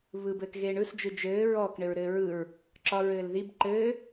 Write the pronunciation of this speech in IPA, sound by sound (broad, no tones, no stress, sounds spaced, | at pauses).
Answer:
β ɯ b ɘː k ɣ eː ɳ ɯ s d͡ʒ ɯ d͡ʒ ɘː ɹ ɔ k ɳ ɘ ɹ ɾ ɘː ɹ ɯ ɹ | ǁ ɒ ɹ ɘː l ð i b ǃ ɘː